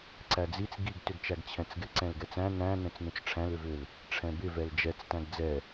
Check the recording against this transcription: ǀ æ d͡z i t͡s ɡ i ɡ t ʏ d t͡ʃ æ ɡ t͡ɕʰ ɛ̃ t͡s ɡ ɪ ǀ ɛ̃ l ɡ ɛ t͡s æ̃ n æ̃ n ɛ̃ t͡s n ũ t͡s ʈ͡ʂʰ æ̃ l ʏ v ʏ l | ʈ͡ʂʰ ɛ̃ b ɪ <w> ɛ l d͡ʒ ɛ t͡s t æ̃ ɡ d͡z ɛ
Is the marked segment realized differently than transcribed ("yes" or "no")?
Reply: yes